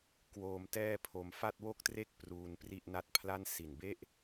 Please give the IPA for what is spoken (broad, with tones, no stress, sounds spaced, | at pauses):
k w oː˧ m t ɛː˥˩ pʰ o˧ m f a˥˩ t̚ w o˥˩ k̚ t r e˥˩ k̚ p r uː˧ n p r i˥˩ ʔ n a˦˥ t̚ pʰ l a˥˩ n s i˨˩ n b e˥˩ ʔ